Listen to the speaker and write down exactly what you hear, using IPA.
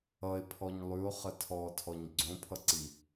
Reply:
ʌ e̯ pʰ ɔ ɲ lˠ ʉ o̯ χ ə tʰ ɔ tʰ ɔ ɲ ɡ͡ǀ õ pʰ ʌ ǀ i

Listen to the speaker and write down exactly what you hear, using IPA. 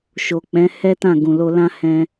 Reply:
ʃ o˨ k͡p ɛ̃˨˦ h ɛ˦ t ã˦˨ ɡ ũ˨ l o˧ l ã˦ h ɛ̃˦

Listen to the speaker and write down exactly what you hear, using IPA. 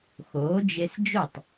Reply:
x oː˩˥ d͡ʒ e˧ s d͡ʒ o˥˩ tˤ

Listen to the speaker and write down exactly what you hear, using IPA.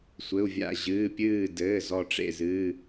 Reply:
sʷ ɘ˩˧˩ u̯ vʲ a̰˧˩ ʑ ɨː˩˧˩ pʲ ɨː˧˩ d ɘː˩˧˩ z ɔ˧˩ ʈ͡ʂ ḛ˧˩ z ɨ˩˧˩

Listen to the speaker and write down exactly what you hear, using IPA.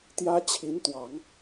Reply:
t̪ j ä˥ t͡ɕʰ i˧˥ n t̪ w ɑ˨˩˦ ŋ

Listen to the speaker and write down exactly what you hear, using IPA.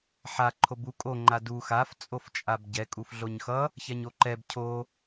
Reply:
ħ a ǃʰ o b u kʼ o ŋ͡ǃ a d u x a f t͡sʼ o f t͡ʃʼ a b ɟ ɛ kʼ u f ɮ o ɲ x ʌ | ç ɛ ɲ o ǃ ɛ b cʰ o

